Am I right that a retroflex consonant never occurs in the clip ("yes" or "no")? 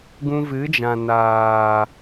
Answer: yes